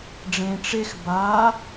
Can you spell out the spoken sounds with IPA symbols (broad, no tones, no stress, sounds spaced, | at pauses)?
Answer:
ɖ͡ʐ ẽ ʈ͡ʂ e x b a